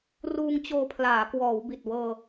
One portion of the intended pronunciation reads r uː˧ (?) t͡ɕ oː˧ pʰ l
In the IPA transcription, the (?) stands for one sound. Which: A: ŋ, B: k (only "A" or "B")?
A